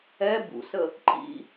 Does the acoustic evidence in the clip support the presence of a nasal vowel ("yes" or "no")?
no